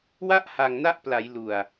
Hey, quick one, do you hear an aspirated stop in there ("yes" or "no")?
no